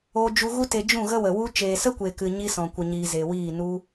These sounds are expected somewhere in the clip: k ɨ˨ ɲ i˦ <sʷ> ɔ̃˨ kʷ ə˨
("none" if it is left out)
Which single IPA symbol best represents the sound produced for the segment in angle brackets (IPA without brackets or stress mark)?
s